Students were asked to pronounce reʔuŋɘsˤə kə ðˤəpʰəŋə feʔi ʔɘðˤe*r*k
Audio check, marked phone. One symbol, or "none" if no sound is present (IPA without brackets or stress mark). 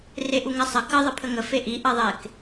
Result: none